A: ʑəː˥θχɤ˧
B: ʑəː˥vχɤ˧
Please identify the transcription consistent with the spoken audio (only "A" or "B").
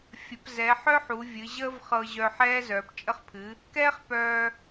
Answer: B